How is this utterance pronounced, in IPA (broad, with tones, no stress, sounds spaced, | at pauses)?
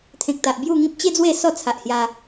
t̪ʰ ẽ˨ k̚ t̪ a˨ ʔ b j u˥˧ ŋ ĩ˦ p̚ t͡ɕ e˦ d͡z w e˥˧ s ɔ˥˧ t͡sʰ a˨ ʔ h j a˧